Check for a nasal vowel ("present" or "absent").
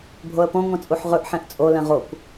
present